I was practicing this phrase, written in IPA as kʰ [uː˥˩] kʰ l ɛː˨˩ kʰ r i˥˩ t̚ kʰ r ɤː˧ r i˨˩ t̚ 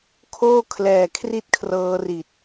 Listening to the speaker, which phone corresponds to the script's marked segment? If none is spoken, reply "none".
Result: oː˥˩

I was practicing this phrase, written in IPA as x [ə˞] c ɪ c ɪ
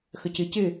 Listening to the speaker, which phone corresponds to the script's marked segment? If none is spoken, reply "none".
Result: ə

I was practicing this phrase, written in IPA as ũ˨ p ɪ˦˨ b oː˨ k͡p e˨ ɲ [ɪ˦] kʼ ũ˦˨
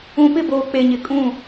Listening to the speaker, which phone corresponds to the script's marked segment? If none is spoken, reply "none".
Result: ɪ˨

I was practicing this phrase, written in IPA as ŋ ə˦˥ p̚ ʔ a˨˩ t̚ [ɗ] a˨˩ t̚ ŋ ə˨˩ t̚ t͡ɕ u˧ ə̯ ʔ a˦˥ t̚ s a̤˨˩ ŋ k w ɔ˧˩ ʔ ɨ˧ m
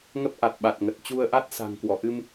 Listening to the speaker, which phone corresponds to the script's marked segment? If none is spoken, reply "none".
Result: ɓ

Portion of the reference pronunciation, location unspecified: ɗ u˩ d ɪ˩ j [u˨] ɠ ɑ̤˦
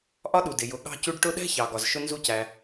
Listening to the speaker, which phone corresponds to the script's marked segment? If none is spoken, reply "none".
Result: ʊ˨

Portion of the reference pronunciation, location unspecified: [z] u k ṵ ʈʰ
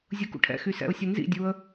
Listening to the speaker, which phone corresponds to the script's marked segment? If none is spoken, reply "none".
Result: zʲ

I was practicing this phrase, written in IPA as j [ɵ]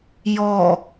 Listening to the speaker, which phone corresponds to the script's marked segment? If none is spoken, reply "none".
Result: ɔ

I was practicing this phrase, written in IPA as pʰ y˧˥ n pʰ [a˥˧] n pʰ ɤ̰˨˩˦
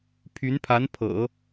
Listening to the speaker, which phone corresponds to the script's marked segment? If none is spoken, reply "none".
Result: a˧˥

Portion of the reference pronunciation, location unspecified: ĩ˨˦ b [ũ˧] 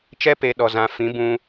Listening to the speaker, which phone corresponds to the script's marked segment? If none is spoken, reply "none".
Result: ũ˧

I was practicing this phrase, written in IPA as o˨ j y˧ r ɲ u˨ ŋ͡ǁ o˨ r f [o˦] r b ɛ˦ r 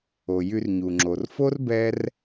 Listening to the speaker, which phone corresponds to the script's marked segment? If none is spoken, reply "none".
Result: o˦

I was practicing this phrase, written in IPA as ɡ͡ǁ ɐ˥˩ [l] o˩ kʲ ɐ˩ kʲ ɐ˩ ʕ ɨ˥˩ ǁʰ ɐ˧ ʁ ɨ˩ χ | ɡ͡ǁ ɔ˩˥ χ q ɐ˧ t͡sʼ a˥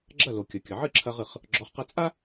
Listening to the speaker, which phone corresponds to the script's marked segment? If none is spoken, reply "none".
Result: l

